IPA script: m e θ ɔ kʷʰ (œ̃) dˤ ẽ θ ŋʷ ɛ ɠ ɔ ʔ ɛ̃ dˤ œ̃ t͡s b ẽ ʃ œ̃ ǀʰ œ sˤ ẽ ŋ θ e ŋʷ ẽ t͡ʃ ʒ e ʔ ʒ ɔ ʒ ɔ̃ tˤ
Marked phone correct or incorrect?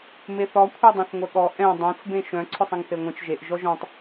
incorrect